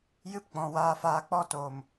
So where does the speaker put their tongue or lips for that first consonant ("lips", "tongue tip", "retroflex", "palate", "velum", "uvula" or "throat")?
palate